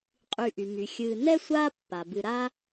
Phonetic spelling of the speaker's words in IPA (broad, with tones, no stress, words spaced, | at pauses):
qʼy˨ʔy˩my˩ xʲɨː˨ nɛ˥sʷaː˦ pːa˩bɨ˨ ɾa˦